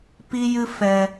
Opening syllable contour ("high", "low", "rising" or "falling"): high